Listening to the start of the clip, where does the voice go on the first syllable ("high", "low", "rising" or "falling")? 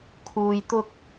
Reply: low